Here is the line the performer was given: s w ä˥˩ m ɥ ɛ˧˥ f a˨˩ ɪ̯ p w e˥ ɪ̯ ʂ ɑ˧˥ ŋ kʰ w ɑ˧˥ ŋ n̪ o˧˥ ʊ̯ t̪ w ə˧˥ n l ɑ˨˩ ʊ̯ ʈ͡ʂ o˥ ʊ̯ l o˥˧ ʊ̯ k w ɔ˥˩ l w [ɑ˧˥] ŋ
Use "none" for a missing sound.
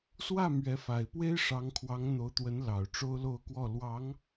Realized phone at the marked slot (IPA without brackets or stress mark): ɑ˧˥